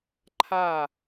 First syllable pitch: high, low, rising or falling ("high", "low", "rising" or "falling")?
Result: falling